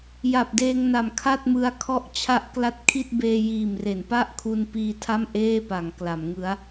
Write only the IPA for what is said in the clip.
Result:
j a˨˩ p̚ d eː˧ ŋ n a˨˩ m kʰ a˥˩ t̚ m ɯ˧ a̯ kʰ ɔ˦˥ ʔ t͡ɕʰ a˦˥ ʔ k l a˦˥ t̚ kʰ i˥˩ t̚ b eː˧ j iː˨˩ m r e˩˦ n p a˥˩ ʔ kʰ u˧ n p iː˧ tʰ a˥˩ m ʔ eː˥˩ p a˩˦ ŋ k l a˩˦ m ŋ ɯ˦˥ a̯

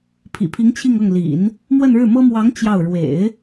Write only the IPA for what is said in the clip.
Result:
pʰ ḭ˨˩ pʰ i˧˥ ŋ t͡ɕʰ i˥˧ ŋ ɤ˥˩ ŋ l ḭ˨˩˦ n | m w ə˥˧ n ɻ ɻ̩˥˩ m ɤ˥ m w ɑ˧˥ ŋ t͡ɕ j ɑ˥˩ ʊ̯ ɻ w ḛ˨˩˦ ɪ̯

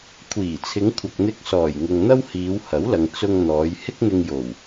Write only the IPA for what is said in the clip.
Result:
kʷʰ iː˨˩ t͡sʰ ɪ˨˧ ŋ kʷʰ ɐ˨ k̚ n̪ ɪ˧ k̚ s ɔː˨˩ j ŋ ʊ˨ ŋ n̪ ɐ˥ w h iː˨˧ w h ɐ˨˥ w l ɐ˨ ŋ t͡s ʊ˧ ŋ n̪ ɔː˨˧ j h ɪ˥ k̚ n̪ ɪ˧ ŋ j o˨˩ w

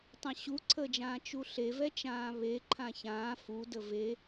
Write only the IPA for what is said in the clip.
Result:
tˤ ã ɕ u ǀʰ əː d͡ʒ ãː t͡ʃ u ɬ e v ɛ t͡ʃ ãː β e ǃʰ ã ç ãː f u d ə v e

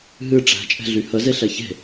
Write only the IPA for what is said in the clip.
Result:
ɦ ɨ ʈ͡ʂ æ̤ t͡ʃʼ ɛ̤ ɮ y h ə z e ɬ ɛ ç e̤

